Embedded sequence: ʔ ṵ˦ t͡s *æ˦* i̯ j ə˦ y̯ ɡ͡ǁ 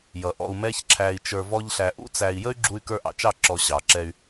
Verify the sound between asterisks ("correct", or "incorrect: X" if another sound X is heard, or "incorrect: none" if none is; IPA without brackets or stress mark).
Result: incorrect: æ˧